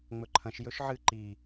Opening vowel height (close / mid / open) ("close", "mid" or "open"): mid